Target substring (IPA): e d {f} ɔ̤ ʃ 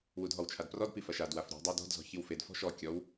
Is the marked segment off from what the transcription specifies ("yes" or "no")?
no